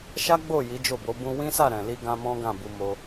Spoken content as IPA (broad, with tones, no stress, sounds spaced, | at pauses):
ʃ a˦ ɡ͡b o˦˨ j i˨˦ d͡ʒ o˦˨ b o˨˦ b ũ˧ w ĩ˦ s a˦˨ ɾ ɛ̃˨ l i˧ ɡ ã˧ m ɔ̃˦ ɡ ã˦˨ b u˧ m o˧